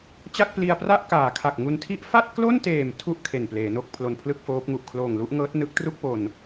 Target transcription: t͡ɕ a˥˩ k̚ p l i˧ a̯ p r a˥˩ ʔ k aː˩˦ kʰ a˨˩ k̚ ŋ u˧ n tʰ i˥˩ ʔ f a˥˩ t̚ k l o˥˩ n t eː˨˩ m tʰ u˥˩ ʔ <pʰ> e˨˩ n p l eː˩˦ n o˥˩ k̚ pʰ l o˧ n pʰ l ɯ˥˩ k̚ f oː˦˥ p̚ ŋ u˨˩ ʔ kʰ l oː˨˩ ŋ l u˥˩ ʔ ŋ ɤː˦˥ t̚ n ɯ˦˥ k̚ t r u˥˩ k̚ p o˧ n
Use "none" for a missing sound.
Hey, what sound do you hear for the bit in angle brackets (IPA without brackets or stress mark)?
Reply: kʰ